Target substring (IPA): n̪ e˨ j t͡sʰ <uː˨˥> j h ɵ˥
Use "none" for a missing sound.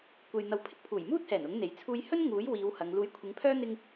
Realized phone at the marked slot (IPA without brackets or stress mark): uː˧